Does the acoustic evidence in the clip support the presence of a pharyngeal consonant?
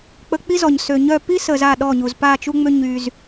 no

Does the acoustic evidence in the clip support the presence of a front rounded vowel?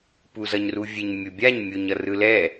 no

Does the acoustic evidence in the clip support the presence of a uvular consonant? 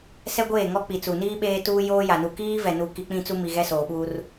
no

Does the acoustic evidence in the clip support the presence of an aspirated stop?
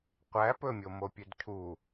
yes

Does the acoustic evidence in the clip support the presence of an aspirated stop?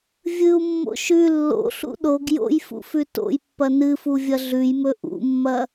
no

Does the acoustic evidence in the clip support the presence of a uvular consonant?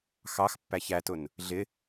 no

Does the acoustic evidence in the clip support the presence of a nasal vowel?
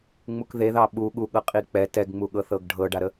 no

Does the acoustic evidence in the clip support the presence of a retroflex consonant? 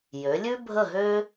no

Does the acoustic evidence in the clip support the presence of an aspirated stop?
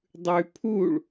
yes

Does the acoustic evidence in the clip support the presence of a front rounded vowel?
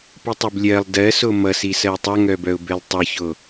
yes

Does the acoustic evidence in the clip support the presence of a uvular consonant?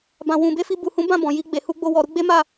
no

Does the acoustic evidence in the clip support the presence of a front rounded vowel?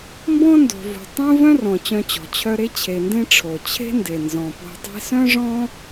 yes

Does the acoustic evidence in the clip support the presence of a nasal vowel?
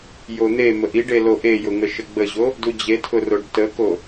no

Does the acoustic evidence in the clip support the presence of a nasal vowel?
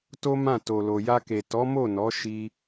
yes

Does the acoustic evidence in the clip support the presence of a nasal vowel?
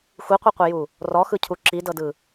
no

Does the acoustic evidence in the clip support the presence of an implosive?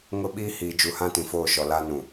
yes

